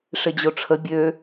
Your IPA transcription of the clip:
ʂ ɪ d͡ʑ o ʈ͡ʂʰ ə bʲ ø

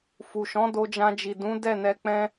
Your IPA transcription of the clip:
f u˨ ʃ ɔ̃˨˦ d o˧ d͡ʒ ã˧ d͡ʒ i˨ d ũ˨˦ d ɛ˦˨ n ɛ˧ k͡p ɛ̃˦

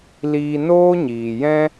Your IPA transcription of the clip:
l iː˧ n oː˦ ɲ iː˨ j ɛ̃˦

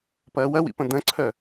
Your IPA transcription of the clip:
p ɐː w ɐ w ḭ p ɐ̃ d̪ ɐ̃ ǀʰ œ

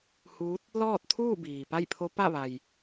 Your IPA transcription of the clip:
h uː˧˥ t̚ | l ɔː˥˨ t̚ t̪ʰ uː˥˨ b iː˩ p a˥˨ j pʰ o˧˥ p a˥˨ ʋ a˩ j

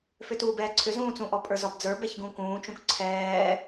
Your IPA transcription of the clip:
f ʏ t uː b ɛː ǀʰ ʏ z ũː t͡s ũ ʔ ɔ pʼ ə˞ z ɒ b d͡z ə˞ b ɛ ç ɡ ũ k ũː t͡ʃ ũ k ǀʰ ɛː

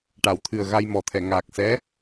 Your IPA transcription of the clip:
ʈ a˨˩˨ w t̪ʰ ɨ˨˩ ə̯ ɣ a˧ j m ɔ˨˩ t̪ʰ ɛ˨˩˨ ŋ aː˨˩ k̚ s ɛ˧˥

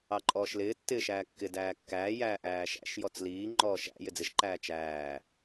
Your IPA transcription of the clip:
ɑ ǃʼ ɔː ʃ l ɪː tː ɪː ʃ æː kː ɪ d æː kː æː j æː ʔ æː ʃ æ̰ ʃ j ɔ t͡s l iː ŋ͡ǃ ɔː ʃ æ̰ j ɪ d͡z ɪ ʃ ǃ æː t͡ʃ æː

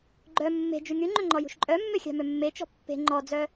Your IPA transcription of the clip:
ɡ͡ǃ œ mː e̤ d͡ʒ y ŋ y ŋ͡ǃ ø ŋ͡ǃ ɔ j ṳ ʃ ǃʼ œ mː ø xʲ ɑ̤ m ø mː e t͡ʃ ɔ̤ pː e̤ ŋ͡ǃ ɔ d͡z œ

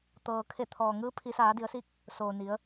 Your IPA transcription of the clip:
t̪ ɤː˩ kʰ e˧˩ t̪ʰ ɔː˩ ŋ ɯː˧˥ pʰ i˩˧ s aː˩˧ d i˩˧ ə̯ s i˧˥ k̚ | s oː˩ n i˩˧ ə̯

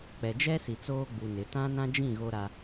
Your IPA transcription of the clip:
k͡p ɛ˨ d͡ʒ ɛ˦ s i˨ t͡s oː˦ ɡ͡b u˨ n ɪ˨˦ t ã˦ n ã˦ d͡ʒ ĩ˦˨ ɣ o˦ ɾ a˦

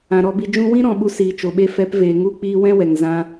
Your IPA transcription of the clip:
ã˨ ɾ ɔ˧ b i˧ d͡ʒ ũ˧ w ĩ˦ ɾ ɔ̃˨ ɓ u˧ s iː˨ t͡ʃ o˨ ɓ e˧ f ɛ˨˦ p v eː˨ ŋ u˦˨ k͡p iː˧ w ɛ̃˦ w ɛ˨ ŋ z ã˦

